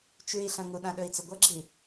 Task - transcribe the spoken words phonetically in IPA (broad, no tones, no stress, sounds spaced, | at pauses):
t͡ʃ ʉ i̯ ɬ ɐ̃ ŋ u ɗ ã ɗ ɵ i̯ t͡s ɵ ɡʷ ɐ ɡ͡ǁ i